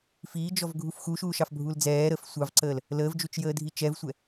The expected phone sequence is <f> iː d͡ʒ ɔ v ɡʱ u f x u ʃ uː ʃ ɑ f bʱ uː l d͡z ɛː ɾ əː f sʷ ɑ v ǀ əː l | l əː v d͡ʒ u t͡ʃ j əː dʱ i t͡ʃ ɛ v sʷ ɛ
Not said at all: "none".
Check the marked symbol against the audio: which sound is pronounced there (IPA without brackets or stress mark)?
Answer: f